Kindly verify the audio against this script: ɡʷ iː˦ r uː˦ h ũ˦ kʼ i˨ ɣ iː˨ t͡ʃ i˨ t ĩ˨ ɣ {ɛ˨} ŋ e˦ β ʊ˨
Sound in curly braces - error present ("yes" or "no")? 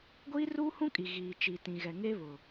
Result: no